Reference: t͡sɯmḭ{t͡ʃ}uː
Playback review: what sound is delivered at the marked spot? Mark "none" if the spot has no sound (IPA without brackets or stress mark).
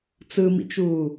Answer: t͡ʃ